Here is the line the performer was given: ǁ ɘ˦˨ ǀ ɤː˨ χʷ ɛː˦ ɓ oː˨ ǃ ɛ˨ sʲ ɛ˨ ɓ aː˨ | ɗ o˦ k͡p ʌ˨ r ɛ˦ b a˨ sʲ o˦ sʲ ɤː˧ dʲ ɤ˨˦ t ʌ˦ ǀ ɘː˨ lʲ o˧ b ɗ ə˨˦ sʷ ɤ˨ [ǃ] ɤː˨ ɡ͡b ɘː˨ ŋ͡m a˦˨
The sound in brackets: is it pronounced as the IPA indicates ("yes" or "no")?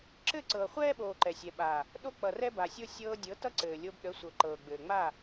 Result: yes